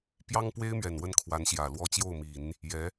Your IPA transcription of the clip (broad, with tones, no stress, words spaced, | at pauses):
pjɑ˥ŋpwe˥ɪ̯mɥɛ˨˩n wə˥˩nkʰwa˧˥n ɕjä˨˩lwɔ˥˧ t͡ɕjo˥˩ʊ̯mi˨˩˦n | jɛ˧˥